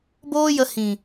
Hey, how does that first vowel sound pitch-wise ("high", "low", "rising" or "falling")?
high